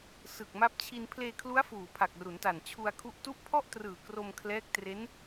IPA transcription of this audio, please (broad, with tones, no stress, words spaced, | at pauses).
sɯ˨˩k̚ma˦˥p̚t͡ɕʰi˧n pʰleː˧kʰlu˦˥a̯ fuː˨˩pʰa˨˩k̚ru˩˦nta˨˩n t͡ɕʰu˧a̯kʰu˦˥ʔtu˥˩ʔ pʰɔ˥˩ʔtrɯː˨˩ kro˧mkʰlɛː˦˥k̚ tre˦˥n